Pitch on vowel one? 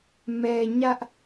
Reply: low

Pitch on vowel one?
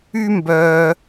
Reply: high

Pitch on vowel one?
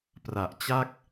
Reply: low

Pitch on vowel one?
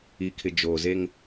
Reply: low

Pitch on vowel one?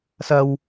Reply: high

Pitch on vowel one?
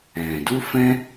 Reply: low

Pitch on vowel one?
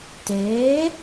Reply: rising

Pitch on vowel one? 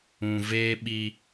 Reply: low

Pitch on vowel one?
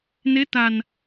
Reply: rising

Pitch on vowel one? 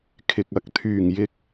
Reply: low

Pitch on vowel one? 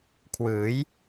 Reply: rising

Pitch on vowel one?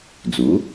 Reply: rising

